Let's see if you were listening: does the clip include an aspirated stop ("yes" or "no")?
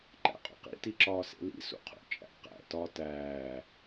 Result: yes